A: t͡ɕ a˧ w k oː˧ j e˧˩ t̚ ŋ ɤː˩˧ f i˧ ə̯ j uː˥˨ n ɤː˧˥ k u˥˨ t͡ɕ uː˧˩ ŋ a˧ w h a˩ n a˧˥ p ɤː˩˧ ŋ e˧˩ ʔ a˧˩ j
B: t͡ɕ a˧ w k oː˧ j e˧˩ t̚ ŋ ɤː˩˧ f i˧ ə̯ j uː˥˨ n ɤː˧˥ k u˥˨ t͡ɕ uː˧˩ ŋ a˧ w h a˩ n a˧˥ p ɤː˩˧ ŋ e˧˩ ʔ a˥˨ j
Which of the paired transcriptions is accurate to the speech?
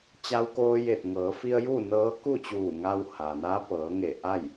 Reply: B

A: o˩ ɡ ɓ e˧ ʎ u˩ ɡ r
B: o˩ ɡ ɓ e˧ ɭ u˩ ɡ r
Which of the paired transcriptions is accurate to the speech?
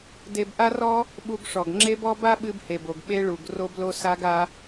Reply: B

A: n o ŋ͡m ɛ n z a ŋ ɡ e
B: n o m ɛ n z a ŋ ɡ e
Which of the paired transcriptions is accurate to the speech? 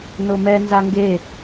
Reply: B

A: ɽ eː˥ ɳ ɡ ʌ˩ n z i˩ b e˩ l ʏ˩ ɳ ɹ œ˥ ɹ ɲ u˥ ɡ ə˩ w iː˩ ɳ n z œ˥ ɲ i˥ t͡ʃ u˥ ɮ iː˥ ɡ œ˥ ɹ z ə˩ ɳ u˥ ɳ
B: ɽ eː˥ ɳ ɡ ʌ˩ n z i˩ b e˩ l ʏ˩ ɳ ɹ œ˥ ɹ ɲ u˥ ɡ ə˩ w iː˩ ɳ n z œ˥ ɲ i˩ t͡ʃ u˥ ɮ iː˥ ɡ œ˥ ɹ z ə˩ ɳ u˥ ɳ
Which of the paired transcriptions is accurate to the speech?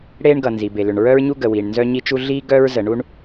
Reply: A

